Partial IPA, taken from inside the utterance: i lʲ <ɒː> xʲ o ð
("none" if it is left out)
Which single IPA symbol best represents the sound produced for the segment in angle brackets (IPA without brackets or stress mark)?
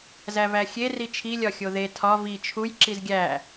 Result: ɒ